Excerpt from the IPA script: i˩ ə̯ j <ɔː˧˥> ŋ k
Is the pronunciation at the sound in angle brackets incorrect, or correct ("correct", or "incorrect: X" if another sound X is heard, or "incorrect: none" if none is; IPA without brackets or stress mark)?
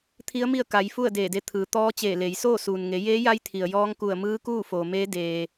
correct